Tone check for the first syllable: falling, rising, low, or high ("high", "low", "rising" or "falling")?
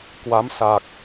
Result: rising